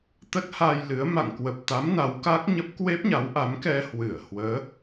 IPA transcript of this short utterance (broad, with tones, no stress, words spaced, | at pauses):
t̪ə˦˥t̚ha˧jlɨ˨˦ə̯ ma̰˧˨ŋkwə˨˩p̚t̪a˨˦m na˨˦wka˦˥k̚ɲə˦˥p̚ kwe˦˥p̚ɲa˨˦wʔa˨˦mkɛ˧ hwɨ˧˩ə̯hwəː˨˦